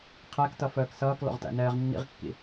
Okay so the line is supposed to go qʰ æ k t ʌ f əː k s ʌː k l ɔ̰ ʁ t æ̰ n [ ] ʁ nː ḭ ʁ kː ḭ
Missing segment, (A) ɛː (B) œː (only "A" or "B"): A